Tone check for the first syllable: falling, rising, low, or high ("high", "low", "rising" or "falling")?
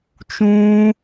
high